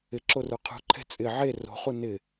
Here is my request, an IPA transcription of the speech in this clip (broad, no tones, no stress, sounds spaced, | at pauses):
ɪ ǁ o r ə˞ qʰ ṳ ǃʰ ɛ̤ t͡sʼ ɪ ʕ e r o̤ χ u n ɪ